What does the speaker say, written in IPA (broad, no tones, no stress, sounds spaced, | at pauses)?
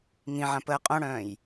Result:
ŋ ĩ ʕ ã p əː qʼ õ ɽ œ̃ː j